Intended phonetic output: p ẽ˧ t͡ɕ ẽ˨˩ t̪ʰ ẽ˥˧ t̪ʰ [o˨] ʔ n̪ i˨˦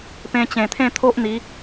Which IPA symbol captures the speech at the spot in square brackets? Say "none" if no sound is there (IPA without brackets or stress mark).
o˦